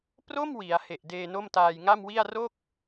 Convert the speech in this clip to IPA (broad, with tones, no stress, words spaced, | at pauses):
pro˥˩m wi˩˦a̯he˨˩ʔ deː˧no˥˩mtaː˧j ŋa˥˩mwi˥˩a̯ ro˥˩k̚